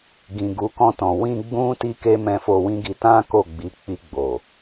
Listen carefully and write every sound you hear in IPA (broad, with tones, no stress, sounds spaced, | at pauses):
ɡ ĩ˨ ɡ u˨˦ k ɔ̃˧ t ɔ̃˨ w ĩ˧ ɡ͡b ũ˦ t i˦ k e˦ m ɛ̃˧ f o˧ w ĩ˦ ɡ i˧ t ã˦ k o˦˨ ɡ͡b i˨˦ k͡p i˧ ɡ͡b o˨